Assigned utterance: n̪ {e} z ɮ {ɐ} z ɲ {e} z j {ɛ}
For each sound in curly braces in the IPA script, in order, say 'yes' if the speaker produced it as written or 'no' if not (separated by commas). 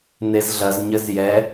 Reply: yes, yes, no, yes